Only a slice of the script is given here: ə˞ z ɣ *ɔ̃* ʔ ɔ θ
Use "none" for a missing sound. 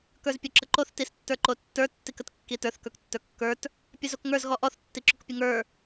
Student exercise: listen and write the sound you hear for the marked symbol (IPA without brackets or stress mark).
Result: ɔ